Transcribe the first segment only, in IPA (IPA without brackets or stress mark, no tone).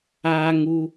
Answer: aː